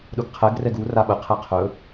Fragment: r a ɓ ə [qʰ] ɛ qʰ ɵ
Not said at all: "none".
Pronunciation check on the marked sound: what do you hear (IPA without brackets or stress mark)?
qʰ